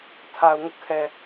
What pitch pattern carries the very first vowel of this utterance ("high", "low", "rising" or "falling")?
low